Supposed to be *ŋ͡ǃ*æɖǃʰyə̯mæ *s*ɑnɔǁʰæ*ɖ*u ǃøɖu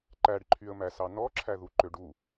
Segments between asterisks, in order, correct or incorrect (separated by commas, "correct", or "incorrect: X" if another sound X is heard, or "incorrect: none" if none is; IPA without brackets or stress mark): incorrect: ǃ, correct, incorrect: ð